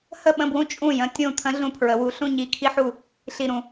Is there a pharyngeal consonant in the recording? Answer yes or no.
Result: yes